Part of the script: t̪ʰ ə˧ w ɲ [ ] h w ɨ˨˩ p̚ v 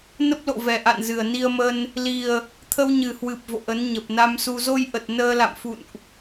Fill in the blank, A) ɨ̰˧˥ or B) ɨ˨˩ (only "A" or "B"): B